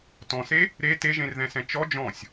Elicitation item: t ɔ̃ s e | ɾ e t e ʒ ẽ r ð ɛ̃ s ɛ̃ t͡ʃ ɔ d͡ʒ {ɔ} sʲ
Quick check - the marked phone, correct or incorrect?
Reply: incorrect